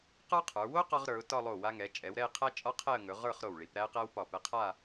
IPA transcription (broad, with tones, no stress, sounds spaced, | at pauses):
q ə˞˥ qʰ ə˞˩˧ w o˥ q ɒ˧ ʁ ɾ ə˞˩˧ ʊ̯ t ɒ˥˧ lˠ o˧˩ w a˧ ŋ ɛ˩˧ t͡ʃʼ ɛ˩˧ w ɾ ɛ˥˧ ɪ̯ qʰ æ˥ t͡ʃʼ ɒ˥ qʰ ɛ˥˧ ə̯ ŋ ɵ˩˧ ʁ ə˞˥˧ χ ɾ o˧˩ w ɭ i˩˧ p ɾ æ˥ ə̯ q æ˥ w p ɒ˧˩ p ɛ˧ qʰ a˥˧